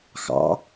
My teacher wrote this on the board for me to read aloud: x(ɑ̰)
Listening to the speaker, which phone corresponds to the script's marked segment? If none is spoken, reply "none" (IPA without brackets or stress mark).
ɑ̰